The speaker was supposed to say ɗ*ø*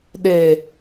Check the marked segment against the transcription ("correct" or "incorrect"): incorrect